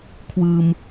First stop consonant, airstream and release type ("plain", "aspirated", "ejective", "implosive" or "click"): aspirated